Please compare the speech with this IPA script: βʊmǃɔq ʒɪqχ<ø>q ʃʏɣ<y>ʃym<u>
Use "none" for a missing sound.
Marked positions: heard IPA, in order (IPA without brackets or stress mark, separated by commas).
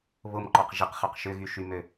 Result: œ, y, ø